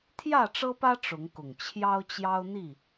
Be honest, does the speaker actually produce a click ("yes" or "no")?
no